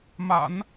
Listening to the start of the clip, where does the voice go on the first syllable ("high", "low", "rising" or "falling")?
low